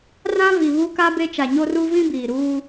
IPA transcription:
r ã˦ v i˨ β u˦ k a˦ b e˦ t͡ʃ a˨ ɲ o˦ r u˦ v ĩ˦ b iː˨ ɾ uː˦

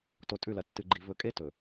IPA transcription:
t o˨ tʼ ʉ˦˨ l ɐ˨ tː ɨ˨ ɡ͡ǃ i˨ v ɵ˨ kʼ e˦ t ɵ˨

